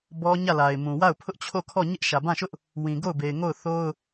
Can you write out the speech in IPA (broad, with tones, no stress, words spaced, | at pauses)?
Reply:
bɔ˦ɲä˦˨ la˨ɪ̯mũ˨wa˦˨ʊ̯ pʰʊ˦ʔt͡ɕʰo˦˨kʰɔ˦˨ ɲɪ˦ʔʃä˨bã˦˨ʃʊ˦ʔ | wĩ˨ɡo˦˨ʊ̯be˨ɪ̯ ŋo˦˨ʊ̯θo˦ʊ̯